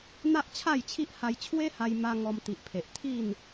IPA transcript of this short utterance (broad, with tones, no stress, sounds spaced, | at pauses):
n̪ a˦ ʔ t͡ɕʰ a˥˧ j t͡ɕʰ i˦ ʔ h a˧ j t͡ɕʰ w e˦ h a˧ j m a˧ ŋ ɔ˧ m t̪ i˨ ʔ pʰ e˨ ʔ t̪ʰ i˥˧ n